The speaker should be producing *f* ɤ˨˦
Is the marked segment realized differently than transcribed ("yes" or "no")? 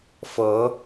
no